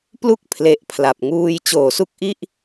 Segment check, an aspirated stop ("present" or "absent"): present